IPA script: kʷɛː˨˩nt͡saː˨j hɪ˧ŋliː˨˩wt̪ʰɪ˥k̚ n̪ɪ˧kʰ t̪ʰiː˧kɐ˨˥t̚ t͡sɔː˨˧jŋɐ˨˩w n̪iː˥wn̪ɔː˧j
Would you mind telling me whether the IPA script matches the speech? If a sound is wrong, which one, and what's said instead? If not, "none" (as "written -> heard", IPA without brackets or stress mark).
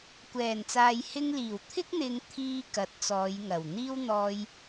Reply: kʰ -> ŋ